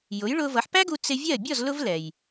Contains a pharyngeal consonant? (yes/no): yes